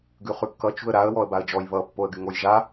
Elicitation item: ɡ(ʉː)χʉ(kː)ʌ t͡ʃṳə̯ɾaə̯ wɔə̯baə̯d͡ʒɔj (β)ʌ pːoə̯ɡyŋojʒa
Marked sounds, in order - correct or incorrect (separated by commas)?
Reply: incorrect, correct, correct